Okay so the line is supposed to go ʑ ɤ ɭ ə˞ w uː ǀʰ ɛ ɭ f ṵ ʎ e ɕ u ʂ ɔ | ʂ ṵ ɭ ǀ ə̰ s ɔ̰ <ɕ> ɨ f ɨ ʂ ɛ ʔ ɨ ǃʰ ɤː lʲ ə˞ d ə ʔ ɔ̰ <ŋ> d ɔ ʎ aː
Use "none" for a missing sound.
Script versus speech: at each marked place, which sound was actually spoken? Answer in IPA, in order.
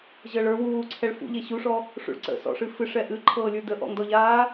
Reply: ʂ, ŋ

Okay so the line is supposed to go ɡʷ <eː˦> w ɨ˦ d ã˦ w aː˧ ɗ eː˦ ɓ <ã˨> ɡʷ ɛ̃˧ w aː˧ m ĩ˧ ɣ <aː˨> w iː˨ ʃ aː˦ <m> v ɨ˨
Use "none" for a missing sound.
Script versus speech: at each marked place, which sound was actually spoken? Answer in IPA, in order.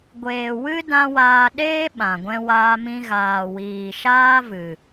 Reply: eː˨, ã˨, aː˨, none

